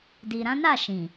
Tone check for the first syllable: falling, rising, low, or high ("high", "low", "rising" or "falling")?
low